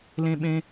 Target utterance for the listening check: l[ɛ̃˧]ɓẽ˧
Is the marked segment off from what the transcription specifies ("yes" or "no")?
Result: yes